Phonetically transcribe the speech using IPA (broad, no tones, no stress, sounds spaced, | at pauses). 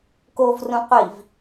k o v r ũ qʷ i v